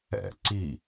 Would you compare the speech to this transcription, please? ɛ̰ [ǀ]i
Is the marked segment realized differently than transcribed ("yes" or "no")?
no